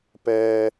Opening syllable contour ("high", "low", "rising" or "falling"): low